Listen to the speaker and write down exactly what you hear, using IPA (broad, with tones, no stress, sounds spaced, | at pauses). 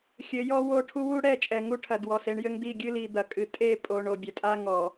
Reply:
xʲ ɘ˨˦ j ɔ˦ w o˦˨ ʈʰ u˦ w u˦ ɽ ɛ˦˨ t͡ʃʼ ɛ˨ ŋ u˦˨ ʈʰ ɐ˨ d w ɔ˨ s e˦ ɳ j ɘ˦ ŋ d̪ i˦˨ ɡʲ ɨ˦ l i˨ d̪ ɐ˨ kʼ ɨ˨ tʼ e˦˨ pʼ o˨ ɳ o˨ bʲ ɐ˨ tʼ a˦ ŋ ɔ˨